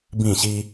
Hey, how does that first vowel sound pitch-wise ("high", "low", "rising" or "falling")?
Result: falling